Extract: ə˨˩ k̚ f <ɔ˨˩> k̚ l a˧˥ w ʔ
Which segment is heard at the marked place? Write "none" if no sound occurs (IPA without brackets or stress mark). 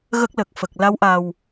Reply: ə˨˩